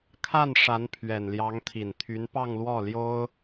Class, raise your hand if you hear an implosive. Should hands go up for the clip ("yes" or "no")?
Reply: no